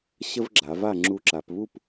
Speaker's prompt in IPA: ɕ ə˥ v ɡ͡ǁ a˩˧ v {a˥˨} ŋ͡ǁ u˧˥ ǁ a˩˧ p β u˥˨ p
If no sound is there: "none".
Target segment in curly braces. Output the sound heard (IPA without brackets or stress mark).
a˥˨